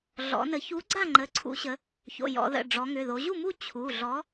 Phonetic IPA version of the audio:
ɮ ɔ̰˩˧ n ə˩˧ ç u˨˥ ɡ͡ǀ a˥˨ ŋ͡ǃ ə˩˧˩ ǀʰ ṵ˩˧ ɕ ə˩˧ | ç o̰˩˧˩ j ɔ̰˩˧ ð ə̰˩˧˩ ɖ͡ʐ ɔ˩˧ ŋ ʏ˩˧˩ ð o˩˧ ʑ u˥˨ m u˥˨ t͡ɕʰ u˩˧˩ ɮ ɔ˨˥

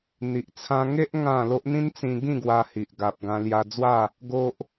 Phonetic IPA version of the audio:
n̪ i˨ ʔ t͡sʰ ã˧ ŋ e˦ ʔ ŋ ã˥˧ l o˦ ʔ n̪ ĩ˦ n t͡s ĩ˧ ɡ ĩ˥˧ ɡ w a˧ h i˨ ʔ ɡ a˨ p̚ ɡ ã˧ l j a˧ d͡z w a˥˧ | ɡ o˦ ʔ

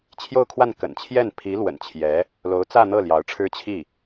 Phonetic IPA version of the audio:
t͡ɕʰ j o˥˧ ʊ̯ kʰ w a˥˩ n k ə̰˨˩ n t͡ɕʰ j ɛ˥˩ n pʰ i˧˥ l w ə̰˨˩ n t͡ɕʰ j ɛ˧˥ | l o˧˥ ʊ̯ t͡s ä˥˧ n̪ ɤ˥˩ l j ɑ˧˥ ʊ̯ ʈ͡ʂʰ ɻ̩˥ t͡ɕʰ i˥˩

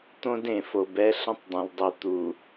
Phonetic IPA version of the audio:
t̪ õ˦ d ẽ˨ f o˨ b ɛ˦ ɬ ə̃˦ tˤ dˤ ẽ˨ lˠ dˤ i˨ t̪ u˨

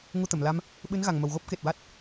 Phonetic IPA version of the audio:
ŋ u˧ t̪ ə˨˩˨ m l a˧ m | ɓ ɨ˧˥ n ɣ a˨˩ ŋ m ə˨˩ w ɣ o˦˥ p̚ k e˨˩ t̚ w a˦˥ t̚

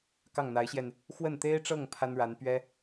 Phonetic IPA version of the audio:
k ɑ˥˩ ŋ n̪ a˧˥ ɪ̯ ɕ j ɛ˧ n | x w ə˥˩ n t̪ e˥ ɪ̯ ʈ͡ʂ ɤ˥˩ ŋ pʰ a˥ n ɻ a˧˥ n p ɥ ɛ˥

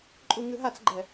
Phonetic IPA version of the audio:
ǃʼ u ŋ ɨ ɦ a t͡s ɡ͡ǃ ɛ

